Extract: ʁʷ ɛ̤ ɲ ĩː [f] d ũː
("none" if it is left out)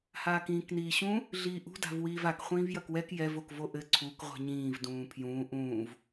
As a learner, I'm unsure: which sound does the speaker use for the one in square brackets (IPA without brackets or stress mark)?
v